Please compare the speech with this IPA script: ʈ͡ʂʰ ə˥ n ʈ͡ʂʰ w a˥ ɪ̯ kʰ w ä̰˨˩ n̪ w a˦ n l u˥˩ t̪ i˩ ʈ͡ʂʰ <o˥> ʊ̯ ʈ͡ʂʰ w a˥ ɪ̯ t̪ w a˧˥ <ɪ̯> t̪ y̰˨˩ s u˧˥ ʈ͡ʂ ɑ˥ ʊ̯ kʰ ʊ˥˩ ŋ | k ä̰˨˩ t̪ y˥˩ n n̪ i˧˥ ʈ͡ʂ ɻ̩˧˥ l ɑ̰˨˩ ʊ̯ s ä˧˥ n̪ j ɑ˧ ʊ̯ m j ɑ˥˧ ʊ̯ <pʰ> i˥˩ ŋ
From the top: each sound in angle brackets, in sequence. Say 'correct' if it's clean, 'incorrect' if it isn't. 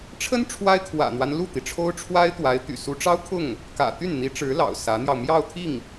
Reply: correct, correct, incorrect: t̪ʰ

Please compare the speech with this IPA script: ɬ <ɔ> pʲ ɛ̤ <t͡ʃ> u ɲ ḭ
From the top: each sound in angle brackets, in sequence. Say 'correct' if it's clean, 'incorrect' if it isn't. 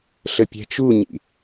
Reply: incorrect: ə, correct

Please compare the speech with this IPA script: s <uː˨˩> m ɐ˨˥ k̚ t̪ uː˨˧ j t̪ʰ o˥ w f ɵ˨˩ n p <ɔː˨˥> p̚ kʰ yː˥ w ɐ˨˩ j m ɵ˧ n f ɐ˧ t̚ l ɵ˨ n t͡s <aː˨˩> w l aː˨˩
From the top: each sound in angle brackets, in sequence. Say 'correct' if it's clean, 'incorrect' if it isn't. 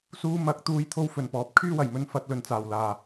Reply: incorrect: uː˧, correct, correct

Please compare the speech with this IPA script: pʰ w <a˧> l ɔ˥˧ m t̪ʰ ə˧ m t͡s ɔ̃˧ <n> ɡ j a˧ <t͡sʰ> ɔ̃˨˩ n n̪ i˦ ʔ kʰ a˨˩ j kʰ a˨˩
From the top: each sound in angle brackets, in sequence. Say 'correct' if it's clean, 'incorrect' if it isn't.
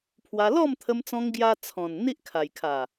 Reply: correct, incorrect: ŋ, correct

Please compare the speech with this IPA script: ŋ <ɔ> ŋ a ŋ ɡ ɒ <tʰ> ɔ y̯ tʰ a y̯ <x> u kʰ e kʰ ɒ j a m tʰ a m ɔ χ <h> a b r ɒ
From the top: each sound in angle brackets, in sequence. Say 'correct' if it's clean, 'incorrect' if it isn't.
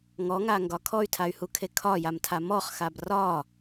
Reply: correct, incorrect: kʰ, incorrect: h, incorrect: x

